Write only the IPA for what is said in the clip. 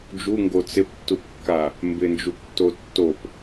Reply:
d͡ʒ u ŋ ɡ o t͡s ɪ p tː u p kː a | m b ɪ n d͡ʒ u p tː o tː o p

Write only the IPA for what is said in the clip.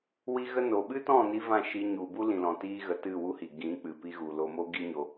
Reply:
w i˦ ɣ ə˦ n o˨ ɓ ɨ˦ t ɔ̃˦˨ n i˧ v ã˦˨ ʃ i˧ ɲ u˨ b u˦ l ĩ˨ l ɔ̃˨ t iː˧ ɣ ə˨ t ɨ˦˨ w u˦ h i˨ ɡ ĩ˨˦ k͡p ɨ˨ p i˧ ɣ u˨ l o˧ m o˦ ɡ i˦ ɲ o˧

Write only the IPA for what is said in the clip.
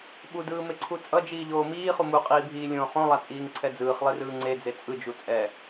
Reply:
ɓ u d ɯː m e ǀʰ u t͡sʼ ʌ d͡ʒ iː ʎ oː m iː χ u m u qʼ iː bʱ iː lʲ õː χ õ lˠ a t͡sʼ iː ŋ ǀʰ ɛ d͡z ɯː χ lˠ e r ɯː ŋ͡ǀ e d͡z e t͡sʼ ɯ d͡ʒ u t͡sʼ ɛ

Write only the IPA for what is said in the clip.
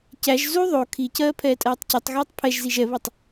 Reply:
c æ ʒ z u ðˤ o kʰ i c ɜː pʰ ɛː tʼ ɜː tˤ c u tˤ ɣ ɛː tˤ pʰ ɛ ʒ z i ʒ ɛ β o tˤ

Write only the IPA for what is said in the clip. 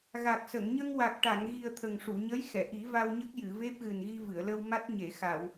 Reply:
ɣ a˨˩ k̚ s ə˨˩˨ ŋ ɲ ə˧ ŋ w a˨˩ k̚ ʈ a˨˩˨ ŋ ɣ i˨˩ ə̯ t̪ʰ ə˨˩ ŋ ʂ u˨˩˨ ɲ ə˧˥ j x ɛ˨˩˨ ʔ i˨˩˦ v a˧ w ɲ ə˦˥ k̚ j ɨ˨˩˨ v e˦˥ p̚ ɣ ɨ˨˩ n ɣ i˧ v ɨ˨˩˨ ə̯ l ə˧ w m a˦˥ t̚ ɲ e˨˩˨ x a˨˩˨ w

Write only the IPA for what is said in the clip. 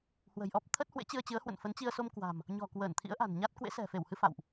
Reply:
h w ə̤˨˩ j ʔ ɔ˦˥ p̚ t̪ʰ ə˦˥ t̚ h w ḛ˧˥ t͡ɕ ɨ˧ ə̯ t͡ɕ ɨ˨˦ ə̯ h w ə̰˧˨ n f ə˨˦ n t͡ɕ i˧ ə̯ s o˧ m k w a̤˨˩ m | ɲ ɔ̤˨˩ k w əː˧˩ n t̪ʰ ḭ˧˥ ə̯ ʔ a̤˨˩ n ɲ a˦˥ t̚ k w ḛ˧˥ s ɛ̤˨˩ f e˧˩ w h ɨ˧ f a̰˧˨ w ʔ

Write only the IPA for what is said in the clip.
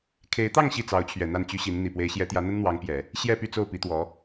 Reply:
kʰ e˧˥ ɪ̯ t̪ ɑ˥˧ ŋ ɕ i˥˩ t͡s ɑ˧˥ ʊ̯ t͡ɕʰ ɥ ɛ˨˩ n̪ a˥˩ n t͡ɕ y˥ ɕ i˧˥ n n̪ i˨˩ p w e˧˥ ɪ̯ ɕ j ɛ˧˥ t̪ j ä˧˥ n̪ ə˥ n n̪ w ɑ˧˥ ŋ p j ɛ˨˩˦ | ɕ j ɛ˥˧ p y˥˧ t͡s o˥˩ ʊ̯ p i˧˥ t̪ w ɔ˧˥

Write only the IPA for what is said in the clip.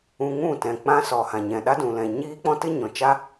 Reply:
ũ˧ ŋ ũ˦˨ t ɛ̃˨ k͡p ã˦ s ɔ˨ h ã˨ ɲ ɛ̃˨ ɗ a˦ d ũ˨ l ɛ̃˨ ɲ iː˦ k͡p ɔ̃˦ t ɨ˦ ɲ ɔ̃˨ t͡ʃ a˦

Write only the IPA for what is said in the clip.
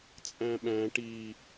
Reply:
t͡sʼ æ̃ ɓ æ̃ ʈ i

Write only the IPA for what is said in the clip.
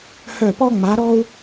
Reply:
h œ˦˨ p ɔ˥ ŋ͡m a˧˥ ɾ ɔ˥ u̯

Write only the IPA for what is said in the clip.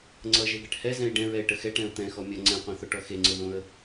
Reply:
ŋ͡ǀ ʌ ʒ e ɡ ɛ ʈ h ɛ z ɛ̃ ɪ̯ ɖ ɛ̃ ɹ ɛ ɪ̯ ʈ ə x ɛ ʈ ɛ̃ ʊ̯ t̪ ɛ̃ x ɔ mʲ ʌ ŋ͡ǀ ɛ̃ qʷ ẽ θ o ʈ ɔ x e ŋ͡ǀ ə ð õ ə̯

